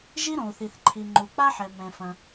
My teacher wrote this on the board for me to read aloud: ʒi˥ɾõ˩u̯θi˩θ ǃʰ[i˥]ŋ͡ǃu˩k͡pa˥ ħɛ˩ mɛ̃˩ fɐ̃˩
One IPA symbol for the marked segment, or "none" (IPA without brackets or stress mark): i˩